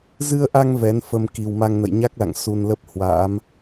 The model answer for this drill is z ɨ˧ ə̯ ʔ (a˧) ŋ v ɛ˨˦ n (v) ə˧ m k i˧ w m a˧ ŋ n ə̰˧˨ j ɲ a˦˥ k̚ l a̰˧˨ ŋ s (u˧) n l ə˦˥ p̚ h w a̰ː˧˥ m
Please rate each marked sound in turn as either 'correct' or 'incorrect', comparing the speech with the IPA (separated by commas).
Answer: correct, incorrect, correct